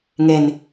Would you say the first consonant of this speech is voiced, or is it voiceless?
voiced